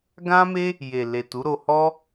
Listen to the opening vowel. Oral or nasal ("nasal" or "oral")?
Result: nasal